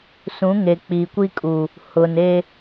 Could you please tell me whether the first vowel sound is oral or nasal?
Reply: nasal